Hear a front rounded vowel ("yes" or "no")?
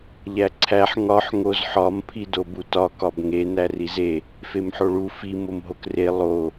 no